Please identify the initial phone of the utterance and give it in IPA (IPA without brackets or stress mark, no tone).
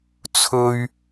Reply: t͡sʰ